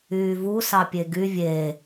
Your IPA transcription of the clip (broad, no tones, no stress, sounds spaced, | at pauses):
yː v u s ɑ pʲ e ɡ y vʲ e